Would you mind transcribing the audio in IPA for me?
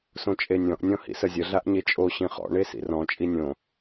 s õ t͡ʃʼ e nʲ ɔ̃ ʔ nʲ ɔ̃ h ḭ s ə zʲ ə ɮ a ʔ ɲ e t͡ʃʼ o ɕ ĩ χ ɔ̰ ɳ e s ḭ r ɔ̃ t͡ʃʼ i nʲ õ

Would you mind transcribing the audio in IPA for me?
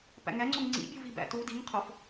p æ̰ ŋ æ ŋ͡ǀ o ŋ ŋ͡ǀ ḭ bʲ u v i b æ̰ t u d i ŋ qʰ o f

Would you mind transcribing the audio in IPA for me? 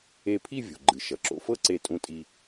e˧ pʰ i˥˧ vʲ o̤˩ ɡ͡ǃ ɨ˩ ʃ ʌ˩ ǁ o̰˧ f ɤ˥˧ ǀ e˧˩ tʼ ũ˧ tʼ i˧

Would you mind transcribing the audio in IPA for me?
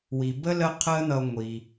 w i˩ b ə˥ l ə˦ qʰ əː˦ n̪ ʌ˨ ŋʷ i˩

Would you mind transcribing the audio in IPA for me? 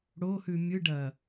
ɽ o h ʉ mʲ ɯ ɖ ɐ

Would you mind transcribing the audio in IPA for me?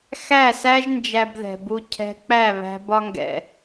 x æ˦˨ s æ˦ ʒ n d͡ʒ æ˧ b ð ɛ̤˨ b u˧ cʰ ɛ̤˧ k͡p æ˦˨ β æ̤˧ b ɒ˧ ŋ ɡ ɛ̰˨

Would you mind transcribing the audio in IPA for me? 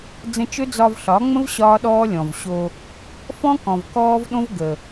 d͡z ə̃˧ t͡ʃ ɵ˦ d͡z ɒ˧ v ɬ ɒ˨˦ ŋ͡m ə̃˦ v ɕ ɒː˦ ɗ ɔː˦ lʲ ɔ̃˨ v ɕ o˧ | f ɔ̃˦ k ɔ̃˨ v k ɔː˦ v ɗ õ˦ v ɡ ə˨

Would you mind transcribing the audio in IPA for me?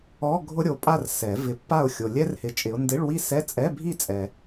ɔ˧˥˧ ɡʱ ʊ˦˥ ɾʲ o˨ pʼ a˥˨ r s ɛ˨˩˦ v ɪ˨˦ pː a˥˨ ʊ̯ xʲ o˨ lʲ ɛ˦˥ r h ɪ˨ t͡ʃʼ ɪ˨˦ ʊ̯ n d ɪ˧˥˧ ɭ w i˥˨ s ɛ˧˥˧ t͡sʼ ɛ˧˥˧ bʱ i˥˨ t͡sʼ ɛ˨

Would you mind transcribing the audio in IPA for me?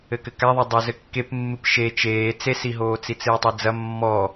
ɘ k ɘ k a ðˤ ɛ dˤ o z ɘ kː e p mː ɨ p ʃ e t͡ʃ eː t͡s e s i ɦ oː t͡s i t͡s ɨː tˤ e d͡z ɐ mː ɔ

